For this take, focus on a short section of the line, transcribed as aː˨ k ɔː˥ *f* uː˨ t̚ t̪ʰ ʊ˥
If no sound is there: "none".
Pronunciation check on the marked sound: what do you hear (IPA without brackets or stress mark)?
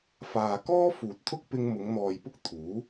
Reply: f